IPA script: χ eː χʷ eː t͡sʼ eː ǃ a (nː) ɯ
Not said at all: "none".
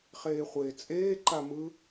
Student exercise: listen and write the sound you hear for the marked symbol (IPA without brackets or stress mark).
m